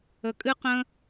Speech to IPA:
ə˧ kʼ ɨ˥ q ə̃˥

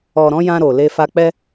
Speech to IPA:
ɔ˨ ɾ ɔ̃˨˦ j ã˧ ɾ o˨ l e˧ f a˧ k͡p ɛ˦

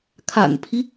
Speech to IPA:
kʰ a̰˨˩ n pʰ i˦

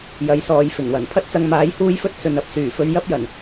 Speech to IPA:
j ɐ˨˥ j s ɔː˨˧ j f ɪ˨˩ ŋ w ɐ˨˩ n pʰ ɐ˥ t̚ t͡s ɐ˧ ŋ m aː˨˥ j h uː˥ j f ɵ˥ t̚ t͡s ɵ˨ n ɐ˧ p̚ s yː˨˩ f ɵ˧ ɥ j ɐ˥ p̚ j ɐ˨˩ n

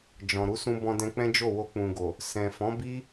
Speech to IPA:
d͡ʒ ɔ̃˨ ɾ u˨˦ s ũ˧ b ɔ̃˧ d ɛ̃˧ k͡p ɛ̃˦ d͡ʒ o˦˨ w o˧ k͡p ũ˨ ɡ o˨ | s ɛ̃˨ f ɔ̃˨˦ b i˦

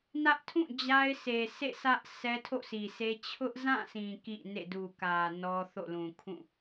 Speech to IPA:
n ä˦ ʔ tʰ ũ˦˨ d͡ʑ a˦ ɪ̯ s e˨ sʰ ḛ˦˨ s ä˦ ʔ sʰ ɛ˦ tʰ o̰˦˨ sʰ i˨ sʰ e˦ t͡ɕʰ ʊ˦ ʔ z ã˦˨ sʰ ĩ˨ k ḭ˦˨ n ḛ˦˨ d u˨ k ä˨ n ɔ˦ θ o̰˦˨ l ũ˨ kʰ ũ˦˨

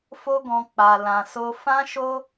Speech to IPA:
f o˦ ɡ ɔ̃˧ k͡p a˨ l ã˨ s o˧ f ã˦ ʃ o˦

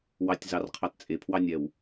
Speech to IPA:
w ɑ tʲ z ɑ r qʰ ɑ t t͡sʼ e pʰ w ɑ nʲ ɛ w

